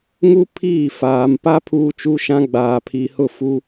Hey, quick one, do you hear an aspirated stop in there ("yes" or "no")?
yes